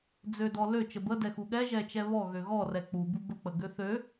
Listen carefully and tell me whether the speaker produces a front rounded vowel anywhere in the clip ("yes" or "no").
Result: yes